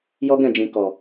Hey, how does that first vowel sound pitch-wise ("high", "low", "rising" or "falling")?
high